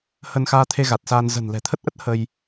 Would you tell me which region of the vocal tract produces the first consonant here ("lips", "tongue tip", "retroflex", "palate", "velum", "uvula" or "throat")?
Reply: throat